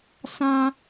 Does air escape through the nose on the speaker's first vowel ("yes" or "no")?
yes